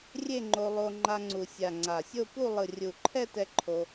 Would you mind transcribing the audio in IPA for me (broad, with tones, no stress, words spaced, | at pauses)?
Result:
rʲe˥˧ŋ͡ǃo˧ lˠo˧ ŋ͡ǃa˧ŋ͡ǀu˨˩sʲa˨˩ ŋ͡ǀa˨˩sʲo˥˧pu˥˧ lˠɯ˨˩rʲu˨˩ǃʰɛ˥˧tɛ˧ ǃʰo˧